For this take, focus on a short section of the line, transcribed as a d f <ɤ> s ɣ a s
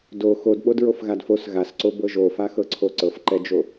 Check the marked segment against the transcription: incorrect: o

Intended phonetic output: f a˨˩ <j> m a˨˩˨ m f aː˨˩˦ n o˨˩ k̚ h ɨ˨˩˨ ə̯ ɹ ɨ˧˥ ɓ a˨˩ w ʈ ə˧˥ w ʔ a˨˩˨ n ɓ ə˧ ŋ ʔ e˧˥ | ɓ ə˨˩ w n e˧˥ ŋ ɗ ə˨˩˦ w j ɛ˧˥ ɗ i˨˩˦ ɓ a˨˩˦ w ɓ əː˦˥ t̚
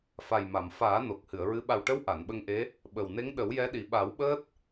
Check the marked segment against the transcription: correct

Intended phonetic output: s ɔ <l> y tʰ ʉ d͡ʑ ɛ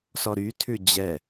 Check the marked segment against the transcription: incorrect: ɾ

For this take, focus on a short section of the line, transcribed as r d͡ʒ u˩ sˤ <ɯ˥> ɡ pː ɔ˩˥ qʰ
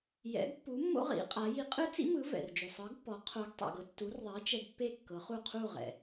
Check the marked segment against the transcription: incorrect: ɯ˩˥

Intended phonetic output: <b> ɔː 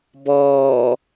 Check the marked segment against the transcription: correct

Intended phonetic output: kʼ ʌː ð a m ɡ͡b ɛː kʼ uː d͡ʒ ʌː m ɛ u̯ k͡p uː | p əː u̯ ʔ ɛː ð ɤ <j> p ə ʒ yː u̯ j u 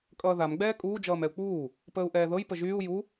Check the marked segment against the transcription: correct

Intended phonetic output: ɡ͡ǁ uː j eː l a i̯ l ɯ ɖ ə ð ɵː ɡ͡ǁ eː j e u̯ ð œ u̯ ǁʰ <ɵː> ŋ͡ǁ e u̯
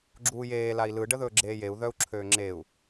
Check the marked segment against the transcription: incorrect: øː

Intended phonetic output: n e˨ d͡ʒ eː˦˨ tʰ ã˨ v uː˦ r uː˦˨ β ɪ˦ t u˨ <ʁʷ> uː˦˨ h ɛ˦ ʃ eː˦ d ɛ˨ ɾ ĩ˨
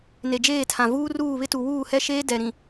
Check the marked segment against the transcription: incorrect: w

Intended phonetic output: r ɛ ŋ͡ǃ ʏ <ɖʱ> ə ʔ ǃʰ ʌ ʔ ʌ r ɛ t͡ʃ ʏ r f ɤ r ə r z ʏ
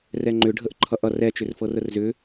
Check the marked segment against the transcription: correct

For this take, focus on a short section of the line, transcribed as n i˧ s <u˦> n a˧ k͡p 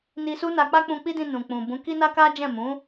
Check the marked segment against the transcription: correct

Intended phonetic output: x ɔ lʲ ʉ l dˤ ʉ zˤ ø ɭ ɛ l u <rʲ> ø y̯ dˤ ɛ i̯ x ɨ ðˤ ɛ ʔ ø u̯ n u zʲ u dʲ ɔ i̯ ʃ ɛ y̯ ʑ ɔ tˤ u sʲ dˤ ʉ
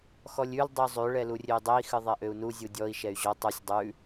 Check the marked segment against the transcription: correct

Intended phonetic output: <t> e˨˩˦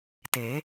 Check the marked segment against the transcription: correct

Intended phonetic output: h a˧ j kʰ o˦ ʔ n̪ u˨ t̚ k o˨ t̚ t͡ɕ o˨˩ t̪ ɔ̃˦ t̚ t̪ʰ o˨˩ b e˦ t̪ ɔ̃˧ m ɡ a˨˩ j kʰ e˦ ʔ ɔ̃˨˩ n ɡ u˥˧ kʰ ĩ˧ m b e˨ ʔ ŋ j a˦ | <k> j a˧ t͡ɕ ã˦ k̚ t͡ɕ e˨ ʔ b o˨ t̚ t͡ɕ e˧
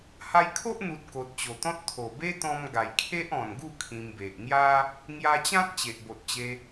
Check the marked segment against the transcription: incorrect: ŋ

